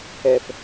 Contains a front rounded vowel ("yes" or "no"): no